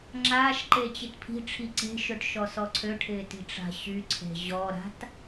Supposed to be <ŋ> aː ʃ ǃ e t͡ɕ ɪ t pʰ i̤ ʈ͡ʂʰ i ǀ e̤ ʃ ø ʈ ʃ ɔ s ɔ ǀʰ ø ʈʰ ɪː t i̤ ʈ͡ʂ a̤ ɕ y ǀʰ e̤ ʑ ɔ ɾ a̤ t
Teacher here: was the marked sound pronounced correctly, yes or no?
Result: no